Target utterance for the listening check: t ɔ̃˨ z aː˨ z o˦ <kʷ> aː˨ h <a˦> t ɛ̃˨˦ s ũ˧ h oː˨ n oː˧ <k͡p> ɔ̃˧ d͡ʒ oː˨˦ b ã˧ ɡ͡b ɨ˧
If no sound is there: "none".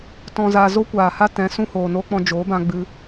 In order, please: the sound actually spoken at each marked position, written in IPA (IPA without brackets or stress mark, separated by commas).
kʷ, a˦, k͡p